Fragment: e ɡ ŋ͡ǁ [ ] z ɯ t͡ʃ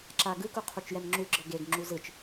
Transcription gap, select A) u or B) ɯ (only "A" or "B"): A